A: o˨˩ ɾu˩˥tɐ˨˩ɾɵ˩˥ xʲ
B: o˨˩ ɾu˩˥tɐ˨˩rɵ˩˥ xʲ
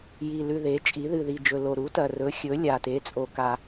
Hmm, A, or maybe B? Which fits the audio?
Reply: B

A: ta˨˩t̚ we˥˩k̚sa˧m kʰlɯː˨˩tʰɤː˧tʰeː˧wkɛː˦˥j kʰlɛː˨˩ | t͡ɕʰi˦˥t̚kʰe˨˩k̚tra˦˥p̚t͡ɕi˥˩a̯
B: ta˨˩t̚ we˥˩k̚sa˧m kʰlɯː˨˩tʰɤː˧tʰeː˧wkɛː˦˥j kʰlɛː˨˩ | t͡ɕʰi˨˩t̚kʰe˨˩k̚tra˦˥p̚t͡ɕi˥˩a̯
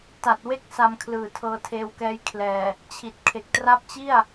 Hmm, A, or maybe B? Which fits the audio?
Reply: B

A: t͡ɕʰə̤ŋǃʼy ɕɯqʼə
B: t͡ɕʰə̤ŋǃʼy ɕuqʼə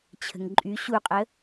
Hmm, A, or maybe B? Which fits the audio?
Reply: B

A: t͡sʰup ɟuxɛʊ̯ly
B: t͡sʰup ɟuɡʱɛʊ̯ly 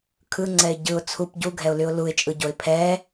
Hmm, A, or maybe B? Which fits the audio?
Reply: B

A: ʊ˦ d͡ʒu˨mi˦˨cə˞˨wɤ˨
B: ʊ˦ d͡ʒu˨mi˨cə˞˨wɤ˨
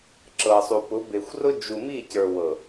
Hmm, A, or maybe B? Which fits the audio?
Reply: A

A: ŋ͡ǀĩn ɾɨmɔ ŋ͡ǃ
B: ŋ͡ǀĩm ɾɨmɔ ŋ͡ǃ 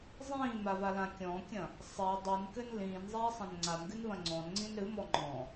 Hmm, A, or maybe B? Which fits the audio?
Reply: A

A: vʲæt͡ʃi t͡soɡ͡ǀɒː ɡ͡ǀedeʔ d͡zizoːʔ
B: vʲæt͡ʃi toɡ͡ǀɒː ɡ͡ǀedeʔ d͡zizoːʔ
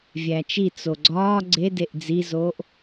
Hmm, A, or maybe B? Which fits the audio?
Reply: A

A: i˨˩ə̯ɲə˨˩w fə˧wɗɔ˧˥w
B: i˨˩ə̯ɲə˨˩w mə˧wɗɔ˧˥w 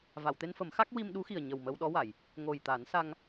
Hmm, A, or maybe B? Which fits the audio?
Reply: B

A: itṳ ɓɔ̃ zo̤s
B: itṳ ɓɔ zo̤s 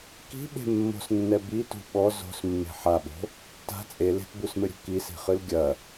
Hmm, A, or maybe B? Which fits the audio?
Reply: B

